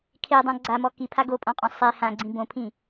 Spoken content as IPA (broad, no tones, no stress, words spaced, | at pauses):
kʰedˤã ɡ͡ǀamɔ kipʰa ɡopʼɔ̃qʼɔ̃ sˤe hãɡ͡ǀĩ bõpʰĩ